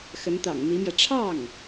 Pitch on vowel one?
rising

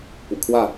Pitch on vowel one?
low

